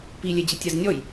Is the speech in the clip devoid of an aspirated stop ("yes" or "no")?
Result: yes